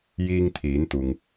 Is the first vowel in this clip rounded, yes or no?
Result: no